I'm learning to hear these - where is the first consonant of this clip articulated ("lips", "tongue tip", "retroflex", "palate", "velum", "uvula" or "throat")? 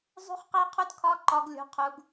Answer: tongue tip